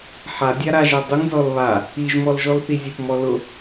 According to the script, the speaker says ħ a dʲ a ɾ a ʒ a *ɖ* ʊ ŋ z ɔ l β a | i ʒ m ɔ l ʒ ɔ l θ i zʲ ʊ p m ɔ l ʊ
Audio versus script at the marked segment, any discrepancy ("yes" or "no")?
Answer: yes